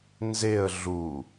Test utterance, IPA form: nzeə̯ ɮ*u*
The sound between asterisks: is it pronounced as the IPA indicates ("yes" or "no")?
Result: yes